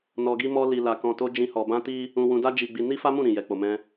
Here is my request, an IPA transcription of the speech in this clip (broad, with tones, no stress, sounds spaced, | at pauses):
n ɔ˧ ɡ i˦ m ɔ˦ l i˧ l a˧ k ɔ̃˧ t o˦ d͡ʒ ĩ˦ h ɔ˧ b ã˦ t i˦ | ũ˧ w ũ˧ d a˦ d͡ʒ i˧ ɡ͡b i˧ n i˦ f a˦ m ũ˦˨ ɾ ĩ˨ j ɛ˨˦ k͡p o˧ m ɛ̃˦